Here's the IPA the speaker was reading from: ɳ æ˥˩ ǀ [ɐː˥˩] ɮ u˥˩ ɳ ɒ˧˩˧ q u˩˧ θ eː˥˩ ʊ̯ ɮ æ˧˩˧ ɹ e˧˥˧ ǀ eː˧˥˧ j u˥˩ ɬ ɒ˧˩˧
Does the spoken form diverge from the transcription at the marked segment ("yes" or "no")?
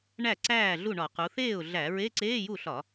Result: yes